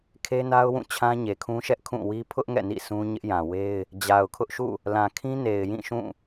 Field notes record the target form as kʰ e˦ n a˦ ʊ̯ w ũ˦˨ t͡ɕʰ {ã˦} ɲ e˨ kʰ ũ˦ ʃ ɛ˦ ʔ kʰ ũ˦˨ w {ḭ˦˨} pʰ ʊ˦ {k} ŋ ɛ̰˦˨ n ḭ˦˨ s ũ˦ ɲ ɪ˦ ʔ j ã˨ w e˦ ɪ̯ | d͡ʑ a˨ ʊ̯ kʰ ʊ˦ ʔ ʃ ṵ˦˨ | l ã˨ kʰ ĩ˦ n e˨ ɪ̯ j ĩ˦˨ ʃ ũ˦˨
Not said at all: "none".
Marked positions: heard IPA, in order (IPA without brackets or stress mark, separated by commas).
ã˦, i˦, ʔ